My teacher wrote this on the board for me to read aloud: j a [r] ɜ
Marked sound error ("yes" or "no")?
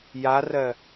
no